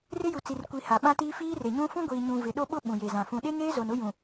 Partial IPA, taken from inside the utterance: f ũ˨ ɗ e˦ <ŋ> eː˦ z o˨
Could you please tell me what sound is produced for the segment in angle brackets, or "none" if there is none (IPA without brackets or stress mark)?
ŋ